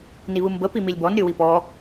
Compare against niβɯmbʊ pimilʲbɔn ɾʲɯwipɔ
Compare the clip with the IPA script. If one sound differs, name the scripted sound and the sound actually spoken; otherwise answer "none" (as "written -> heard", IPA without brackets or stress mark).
ʊ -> ə